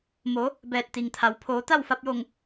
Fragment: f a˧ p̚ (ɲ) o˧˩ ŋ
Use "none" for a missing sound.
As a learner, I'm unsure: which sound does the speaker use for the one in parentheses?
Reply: j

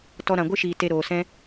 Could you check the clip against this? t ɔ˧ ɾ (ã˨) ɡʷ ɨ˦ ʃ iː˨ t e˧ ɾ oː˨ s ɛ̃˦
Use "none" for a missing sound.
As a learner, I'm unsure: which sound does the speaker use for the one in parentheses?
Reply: ã˨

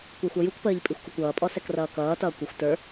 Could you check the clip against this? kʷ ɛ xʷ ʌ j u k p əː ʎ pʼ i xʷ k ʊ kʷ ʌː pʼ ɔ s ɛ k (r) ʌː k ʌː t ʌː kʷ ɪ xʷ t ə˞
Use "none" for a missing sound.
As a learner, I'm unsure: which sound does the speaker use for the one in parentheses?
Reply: r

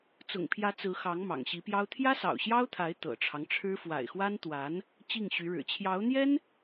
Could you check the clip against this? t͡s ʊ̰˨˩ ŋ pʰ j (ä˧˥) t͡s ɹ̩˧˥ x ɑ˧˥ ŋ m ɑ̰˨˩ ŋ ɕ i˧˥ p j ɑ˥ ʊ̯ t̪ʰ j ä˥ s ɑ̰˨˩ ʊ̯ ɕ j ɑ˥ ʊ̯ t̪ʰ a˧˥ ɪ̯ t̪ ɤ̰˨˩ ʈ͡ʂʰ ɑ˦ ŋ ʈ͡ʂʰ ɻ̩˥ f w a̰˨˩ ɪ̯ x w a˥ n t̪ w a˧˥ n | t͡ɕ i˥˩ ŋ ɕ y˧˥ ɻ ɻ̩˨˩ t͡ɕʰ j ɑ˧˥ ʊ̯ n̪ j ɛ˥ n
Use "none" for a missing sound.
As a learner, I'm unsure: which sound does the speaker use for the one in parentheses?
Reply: ä˧˥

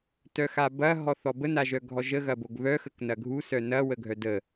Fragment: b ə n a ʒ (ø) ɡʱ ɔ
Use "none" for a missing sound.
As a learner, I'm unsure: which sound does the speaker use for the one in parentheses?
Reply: œ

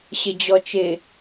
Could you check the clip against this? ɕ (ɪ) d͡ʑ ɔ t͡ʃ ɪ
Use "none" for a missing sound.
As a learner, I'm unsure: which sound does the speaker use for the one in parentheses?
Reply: ɪ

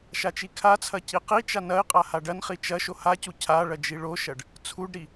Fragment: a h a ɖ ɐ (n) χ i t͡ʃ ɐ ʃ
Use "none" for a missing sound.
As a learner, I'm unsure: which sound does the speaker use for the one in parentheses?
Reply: n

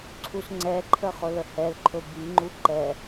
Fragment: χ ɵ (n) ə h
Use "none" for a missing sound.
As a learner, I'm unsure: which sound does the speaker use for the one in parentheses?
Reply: l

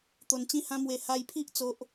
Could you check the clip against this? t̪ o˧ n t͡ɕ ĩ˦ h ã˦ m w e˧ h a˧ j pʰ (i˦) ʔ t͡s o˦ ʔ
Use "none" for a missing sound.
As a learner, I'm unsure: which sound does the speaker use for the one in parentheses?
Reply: i˦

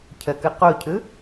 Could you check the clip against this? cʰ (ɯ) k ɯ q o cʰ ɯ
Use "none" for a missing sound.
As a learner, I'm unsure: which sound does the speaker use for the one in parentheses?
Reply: ə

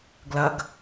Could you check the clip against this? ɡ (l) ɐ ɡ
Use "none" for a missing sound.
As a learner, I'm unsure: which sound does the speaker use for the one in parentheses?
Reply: l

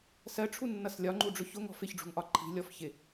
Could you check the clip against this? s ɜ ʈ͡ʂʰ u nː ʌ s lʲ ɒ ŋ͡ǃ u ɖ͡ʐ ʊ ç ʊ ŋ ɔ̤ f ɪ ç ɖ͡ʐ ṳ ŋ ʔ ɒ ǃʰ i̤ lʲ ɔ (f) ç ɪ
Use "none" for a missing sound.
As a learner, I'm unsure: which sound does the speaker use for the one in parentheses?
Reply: f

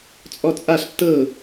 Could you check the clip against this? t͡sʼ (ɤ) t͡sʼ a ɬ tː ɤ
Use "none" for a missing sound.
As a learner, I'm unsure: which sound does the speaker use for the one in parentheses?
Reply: ɔ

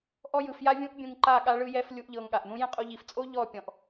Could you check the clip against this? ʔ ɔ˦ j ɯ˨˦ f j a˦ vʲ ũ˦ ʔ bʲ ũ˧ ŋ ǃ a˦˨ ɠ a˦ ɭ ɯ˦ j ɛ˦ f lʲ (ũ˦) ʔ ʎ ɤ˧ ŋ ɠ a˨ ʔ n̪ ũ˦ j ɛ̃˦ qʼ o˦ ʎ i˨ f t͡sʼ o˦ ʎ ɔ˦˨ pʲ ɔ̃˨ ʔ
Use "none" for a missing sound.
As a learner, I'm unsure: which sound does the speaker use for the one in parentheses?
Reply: u˦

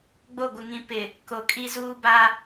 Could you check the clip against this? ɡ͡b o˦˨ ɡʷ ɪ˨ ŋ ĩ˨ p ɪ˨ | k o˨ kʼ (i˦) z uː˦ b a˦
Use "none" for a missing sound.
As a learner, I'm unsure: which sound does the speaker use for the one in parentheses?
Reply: i˦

